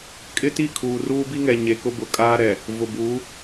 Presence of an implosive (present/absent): absent